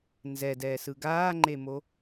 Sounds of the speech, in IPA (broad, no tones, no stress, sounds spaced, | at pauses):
n z ɛ d ɛː s ɯ ɡ aː ŋ͡ǃ e m o